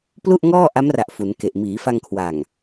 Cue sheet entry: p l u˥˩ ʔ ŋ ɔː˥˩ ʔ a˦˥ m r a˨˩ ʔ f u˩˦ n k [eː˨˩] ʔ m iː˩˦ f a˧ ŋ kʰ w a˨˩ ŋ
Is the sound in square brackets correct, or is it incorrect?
incorrect